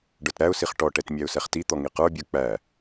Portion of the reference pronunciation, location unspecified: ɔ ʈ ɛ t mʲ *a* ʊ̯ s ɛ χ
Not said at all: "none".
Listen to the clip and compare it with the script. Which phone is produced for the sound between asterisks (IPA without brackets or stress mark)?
æ